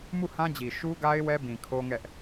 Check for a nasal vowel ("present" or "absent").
present